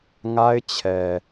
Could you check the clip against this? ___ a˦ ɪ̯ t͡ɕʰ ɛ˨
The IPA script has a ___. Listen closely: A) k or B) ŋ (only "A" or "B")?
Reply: B